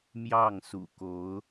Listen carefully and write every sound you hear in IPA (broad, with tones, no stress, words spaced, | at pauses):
mjɑ˥˩ŋ sṵ˨˩ko˧˥ʊ̯